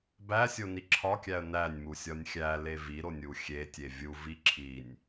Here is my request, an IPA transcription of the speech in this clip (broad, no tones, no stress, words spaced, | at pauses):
bæsʲoni ǁʰɒkʲæə̯ nænʲmusʲɒnʲ xʲæle viɾonʲu xʲetʲe vʲuvi ǁʰinʲ